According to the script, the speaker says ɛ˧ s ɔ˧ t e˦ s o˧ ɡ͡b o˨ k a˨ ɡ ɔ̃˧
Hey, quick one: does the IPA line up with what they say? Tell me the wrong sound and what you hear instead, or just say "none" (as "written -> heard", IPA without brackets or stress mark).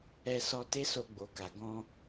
none